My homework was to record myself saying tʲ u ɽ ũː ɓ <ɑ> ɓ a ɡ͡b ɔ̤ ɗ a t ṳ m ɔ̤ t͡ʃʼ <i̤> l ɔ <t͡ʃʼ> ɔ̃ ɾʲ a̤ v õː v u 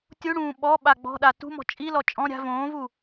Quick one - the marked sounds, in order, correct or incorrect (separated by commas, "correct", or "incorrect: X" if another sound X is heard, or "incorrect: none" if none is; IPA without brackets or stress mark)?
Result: incorrect: ɔ, incorrect: i, correct